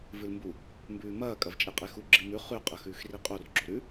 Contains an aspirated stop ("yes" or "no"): no